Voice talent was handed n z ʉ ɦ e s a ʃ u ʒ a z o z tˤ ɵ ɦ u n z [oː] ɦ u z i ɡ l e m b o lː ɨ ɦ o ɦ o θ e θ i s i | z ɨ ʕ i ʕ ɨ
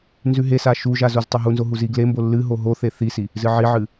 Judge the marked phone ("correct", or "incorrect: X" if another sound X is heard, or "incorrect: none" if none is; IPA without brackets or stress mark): incorrect: o